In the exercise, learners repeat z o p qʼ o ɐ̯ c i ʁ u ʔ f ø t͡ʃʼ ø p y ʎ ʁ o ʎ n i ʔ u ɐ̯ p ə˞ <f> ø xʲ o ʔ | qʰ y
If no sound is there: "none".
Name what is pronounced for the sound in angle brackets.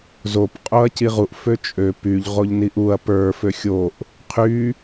f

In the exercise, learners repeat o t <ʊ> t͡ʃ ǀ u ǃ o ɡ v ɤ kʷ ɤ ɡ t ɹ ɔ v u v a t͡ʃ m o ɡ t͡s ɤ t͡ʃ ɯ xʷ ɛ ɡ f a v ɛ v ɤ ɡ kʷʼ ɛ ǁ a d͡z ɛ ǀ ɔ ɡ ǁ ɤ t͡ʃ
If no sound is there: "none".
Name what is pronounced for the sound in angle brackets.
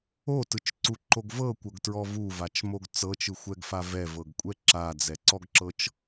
ɯ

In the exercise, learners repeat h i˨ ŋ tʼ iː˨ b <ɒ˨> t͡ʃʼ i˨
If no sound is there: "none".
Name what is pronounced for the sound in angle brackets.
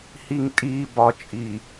ɒ˨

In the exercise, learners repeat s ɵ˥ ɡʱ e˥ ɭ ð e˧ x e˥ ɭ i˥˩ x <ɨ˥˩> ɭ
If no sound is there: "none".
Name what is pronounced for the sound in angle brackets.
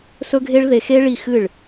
ɨ˥˩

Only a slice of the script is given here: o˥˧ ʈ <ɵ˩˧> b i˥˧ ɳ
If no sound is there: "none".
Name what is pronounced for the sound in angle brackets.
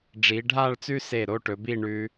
ɵ˩˧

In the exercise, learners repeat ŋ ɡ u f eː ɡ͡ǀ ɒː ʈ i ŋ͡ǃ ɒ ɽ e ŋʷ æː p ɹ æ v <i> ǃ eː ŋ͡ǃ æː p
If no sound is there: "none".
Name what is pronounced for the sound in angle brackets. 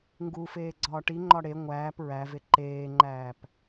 e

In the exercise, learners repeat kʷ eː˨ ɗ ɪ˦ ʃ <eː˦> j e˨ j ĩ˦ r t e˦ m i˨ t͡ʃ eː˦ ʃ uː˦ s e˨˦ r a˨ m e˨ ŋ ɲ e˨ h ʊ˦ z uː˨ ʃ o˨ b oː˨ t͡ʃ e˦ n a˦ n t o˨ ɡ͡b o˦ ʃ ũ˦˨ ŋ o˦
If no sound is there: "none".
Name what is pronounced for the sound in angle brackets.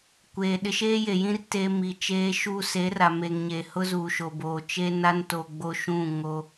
eː˦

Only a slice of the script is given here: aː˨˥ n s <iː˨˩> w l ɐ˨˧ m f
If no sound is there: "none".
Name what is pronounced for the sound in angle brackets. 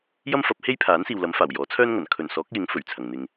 iː˨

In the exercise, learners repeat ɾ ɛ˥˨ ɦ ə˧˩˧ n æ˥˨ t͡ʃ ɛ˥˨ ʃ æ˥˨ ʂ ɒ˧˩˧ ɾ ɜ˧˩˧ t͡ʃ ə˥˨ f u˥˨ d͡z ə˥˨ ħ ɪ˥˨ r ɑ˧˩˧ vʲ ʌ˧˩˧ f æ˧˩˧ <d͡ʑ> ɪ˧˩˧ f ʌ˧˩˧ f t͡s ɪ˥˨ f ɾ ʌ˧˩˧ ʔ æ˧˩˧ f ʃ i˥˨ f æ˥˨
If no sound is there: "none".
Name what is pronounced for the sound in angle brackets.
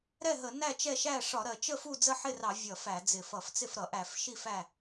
d͡z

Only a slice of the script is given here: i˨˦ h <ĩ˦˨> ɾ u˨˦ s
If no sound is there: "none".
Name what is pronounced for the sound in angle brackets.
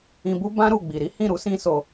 ĩ˦˨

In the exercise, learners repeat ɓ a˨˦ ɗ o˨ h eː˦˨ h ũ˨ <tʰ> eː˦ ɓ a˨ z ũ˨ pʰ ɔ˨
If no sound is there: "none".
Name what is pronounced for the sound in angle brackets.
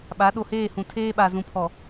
tʰ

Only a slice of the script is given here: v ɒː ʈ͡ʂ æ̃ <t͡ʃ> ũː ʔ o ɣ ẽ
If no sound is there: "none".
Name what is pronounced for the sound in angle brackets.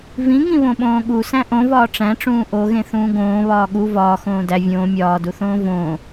ʈ͡ʂ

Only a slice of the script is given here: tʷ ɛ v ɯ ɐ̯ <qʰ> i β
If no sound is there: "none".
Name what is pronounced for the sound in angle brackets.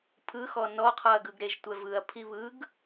pʰ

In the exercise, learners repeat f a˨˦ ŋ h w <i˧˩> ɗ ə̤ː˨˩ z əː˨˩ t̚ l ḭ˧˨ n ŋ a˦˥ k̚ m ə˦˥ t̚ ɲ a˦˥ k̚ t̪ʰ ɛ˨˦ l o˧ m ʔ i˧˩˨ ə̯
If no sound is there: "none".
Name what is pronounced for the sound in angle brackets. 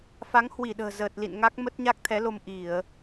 i˧˩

